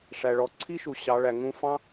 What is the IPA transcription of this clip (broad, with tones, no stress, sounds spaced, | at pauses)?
ʂ æ˩ ɭ ɔ˩ ǀʰ i˥ ʃ u˩˧ ɕ ɑ˩˧ ɭ æ˩ ŋ ũ˧ f ɑ̃˧